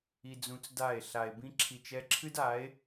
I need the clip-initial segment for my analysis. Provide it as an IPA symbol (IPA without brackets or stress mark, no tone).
i